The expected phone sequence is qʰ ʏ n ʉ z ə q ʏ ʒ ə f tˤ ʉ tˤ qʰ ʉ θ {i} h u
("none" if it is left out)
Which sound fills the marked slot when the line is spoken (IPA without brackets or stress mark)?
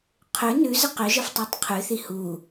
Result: i